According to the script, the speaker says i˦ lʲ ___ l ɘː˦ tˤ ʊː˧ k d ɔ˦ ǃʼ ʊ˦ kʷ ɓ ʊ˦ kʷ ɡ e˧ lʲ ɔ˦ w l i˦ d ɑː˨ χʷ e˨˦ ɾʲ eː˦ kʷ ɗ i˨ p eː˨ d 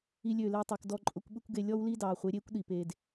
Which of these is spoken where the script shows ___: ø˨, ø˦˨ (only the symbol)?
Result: ø˦˨